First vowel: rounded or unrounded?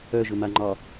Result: rounded